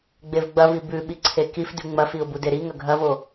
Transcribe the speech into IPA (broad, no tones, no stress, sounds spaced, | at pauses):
ɡ͡b e v ɡ͡b ɐ v i b ʉ ɓ i ǀʰ e k i f d ʉ ŋ͡m ɐ f i ʊ̯ b u d e ɾ i ŋ ɐ ɡʱ ɐ v o